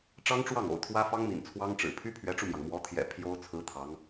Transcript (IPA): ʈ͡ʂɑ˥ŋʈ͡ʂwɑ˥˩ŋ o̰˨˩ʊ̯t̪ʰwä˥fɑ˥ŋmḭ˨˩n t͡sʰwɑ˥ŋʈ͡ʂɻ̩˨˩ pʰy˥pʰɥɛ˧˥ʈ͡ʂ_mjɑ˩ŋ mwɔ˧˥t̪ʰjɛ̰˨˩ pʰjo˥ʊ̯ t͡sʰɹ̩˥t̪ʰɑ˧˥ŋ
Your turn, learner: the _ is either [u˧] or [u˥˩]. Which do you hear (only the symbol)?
u˧